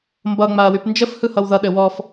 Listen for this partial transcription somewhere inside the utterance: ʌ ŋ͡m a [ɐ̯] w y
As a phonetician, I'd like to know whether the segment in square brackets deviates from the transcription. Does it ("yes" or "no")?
no